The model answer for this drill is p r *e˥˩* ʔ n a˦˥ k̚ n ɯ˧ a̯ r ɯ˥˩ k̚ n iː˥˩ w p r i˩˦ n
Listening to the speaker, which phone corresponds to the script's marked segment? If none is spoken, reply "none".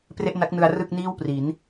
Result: e˥˩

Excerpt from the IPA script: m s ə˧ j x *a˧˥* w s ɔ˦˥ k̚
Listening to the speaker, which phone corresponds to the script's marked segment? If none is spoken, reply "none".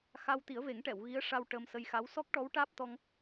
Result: a˧˥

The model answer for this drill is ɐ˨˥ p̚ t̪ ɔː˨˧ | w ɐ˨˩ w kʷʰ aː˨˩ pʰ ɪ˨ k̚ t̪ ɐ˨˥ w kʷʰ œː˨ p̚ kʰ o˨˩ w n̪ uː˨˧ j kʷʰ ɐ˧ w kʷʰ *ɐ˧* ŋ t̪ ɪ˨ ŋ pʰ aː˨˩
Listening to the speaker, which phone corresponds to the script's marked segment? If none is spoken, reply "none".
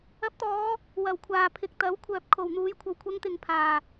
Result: ɐ˧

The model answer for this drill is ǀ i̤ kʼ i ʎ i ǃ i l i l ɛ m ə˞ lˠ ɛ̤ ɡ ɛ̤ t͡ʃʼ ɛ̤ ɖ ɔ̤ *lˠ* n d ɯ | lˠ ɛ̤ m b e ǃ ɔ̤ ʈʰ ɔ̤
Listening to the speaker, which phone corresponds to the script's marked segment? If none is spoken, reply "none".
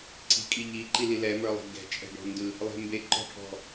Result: none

